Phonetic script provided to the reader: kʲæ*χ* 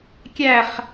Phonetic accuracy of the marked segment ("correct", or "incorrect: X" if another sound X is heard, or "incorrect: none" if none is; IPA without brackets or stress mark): correct